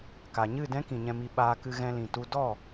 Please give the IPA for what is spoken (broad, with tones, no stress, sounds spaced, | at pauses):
k a˨ ɲ ɨ˦˨ d ɛ̃˦ k ĩ˨ ɲ ɛ̃˧ m i˧ ɓ aː˧ k ɨ˧ ɣ ɛ̃˧ l ĩ˨ t u˧ d ɔ˦˨